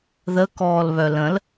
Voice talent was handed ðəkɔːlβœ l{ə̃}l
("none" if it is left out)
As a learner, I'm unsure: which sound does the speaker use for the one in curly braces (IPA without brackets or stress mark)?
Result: ə̃